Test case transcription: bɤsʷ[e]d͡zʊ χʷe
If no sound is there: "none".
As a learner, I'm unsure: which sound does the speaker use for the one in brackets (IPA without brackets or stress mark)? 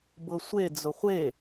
e